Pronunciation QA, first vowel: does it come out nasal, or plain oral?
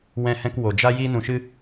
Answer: nasal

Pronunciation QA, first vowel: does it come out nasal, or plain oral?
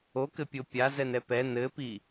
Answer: oral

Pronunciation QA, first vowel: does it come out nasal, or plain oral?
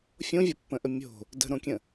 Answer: nasal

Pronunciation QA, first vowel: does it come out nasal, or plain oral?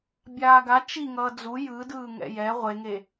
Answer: oral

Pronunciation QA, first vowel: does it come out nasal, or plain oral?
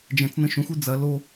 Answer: nasal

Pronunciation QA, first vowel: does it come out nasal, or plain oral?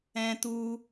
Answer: nasal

